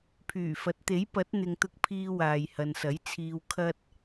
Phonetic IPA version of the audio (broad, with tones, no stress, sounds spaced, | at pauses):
pʰ yː˨˩ f ɐ˨˥ t̚ t̪ e˨˥ j p ɐ˨˥ t̚ n̪ ɪ˨ ŋ t̪ ʊ˧ k̚ pʰ iː˧ w aː˨ j h ɐ˨ n s ɐ˨˥ j t͡sʰ iː˧ w kʰ ɐ˥ t̚